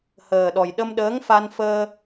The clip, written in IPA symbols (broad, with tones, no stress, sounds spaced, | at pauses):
h əː˨˩ ɗ ɔ˨˩ j ɗ ə˧ m ɗ əː˧˥ ŋ f a˧ n f əː˧